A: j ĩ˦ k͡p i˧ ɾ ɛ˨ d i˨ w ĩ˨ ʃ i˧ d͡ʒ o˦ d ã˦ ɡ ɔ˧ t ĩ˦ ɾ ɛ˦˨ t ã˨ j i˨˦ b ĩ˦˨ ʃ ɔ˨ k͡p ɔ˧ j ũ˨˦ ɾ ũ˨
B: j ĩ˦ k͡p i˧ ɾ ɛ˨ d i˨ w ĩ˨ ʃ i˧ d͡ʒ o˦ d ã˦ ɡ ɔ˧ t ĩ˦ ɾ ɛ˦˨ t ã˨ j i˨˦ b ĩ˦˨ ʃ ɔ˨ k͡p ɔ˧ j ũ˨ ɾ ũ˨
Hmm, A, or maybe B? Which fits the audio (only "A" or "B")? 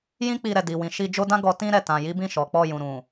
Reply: B